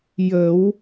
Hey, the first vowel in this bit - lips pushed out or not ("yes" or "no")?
no